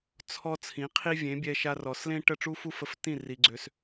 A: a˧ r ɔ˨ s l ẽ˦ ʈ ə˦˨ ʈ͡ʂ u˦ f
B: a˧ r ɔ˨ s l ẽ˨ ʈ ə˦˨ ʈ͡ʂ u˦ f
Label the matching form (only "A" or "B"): A